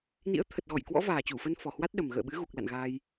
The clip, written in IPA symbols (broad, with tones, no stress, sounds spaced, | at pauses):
n ḭ˧˥ ə̯ t̪ʰ ə˨˩ t̚ ɣ ɔ˧˩ j k w ɔ̰˧˥ v aː˨˩ t͡ɕ u˧˩ f ə˧ n f ɔ˨˩ h w a˦˥ t̚ ɗ ə˨˩ m ɣ ə̰ː˧˨ ɓ ɨ˨˦ ɣ u˨˩ k̚ l a̰˧˨ n ɣ aː˧ j